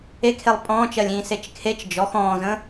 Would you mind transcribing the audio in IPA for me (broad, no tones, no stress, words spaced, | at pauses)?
ekʰelˠ pʼɔ̃ːt͡ʃɜlʲĩː set͡ʃkʰet͡ʃ d͡ʒɔx ɔ̃ːzə̃